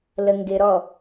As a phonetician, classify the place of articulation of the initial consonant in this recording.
alveolar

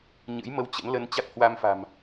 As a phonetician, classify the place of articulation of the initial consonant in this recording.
palatal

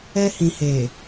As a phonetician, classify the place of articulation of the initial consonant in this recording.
glottal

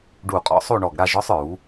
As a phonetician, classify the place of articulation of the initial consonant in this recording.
retroflex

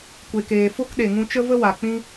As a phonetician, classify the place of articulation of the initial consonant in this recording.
velar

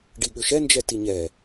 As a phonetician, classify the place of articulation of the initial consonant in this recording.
retroflex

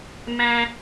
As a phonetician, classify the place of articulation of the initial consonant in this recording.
labial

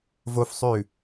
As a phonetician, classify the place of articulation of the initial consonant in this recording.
labial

